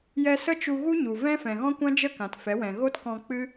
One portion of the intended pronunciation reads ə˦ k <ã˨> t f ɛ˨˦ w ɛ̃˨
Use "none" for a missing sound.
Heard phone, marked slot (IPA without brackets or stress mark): ã˨